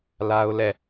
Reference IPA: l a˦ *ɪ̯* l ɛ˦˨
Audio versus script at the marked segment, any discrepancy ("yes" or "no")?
yes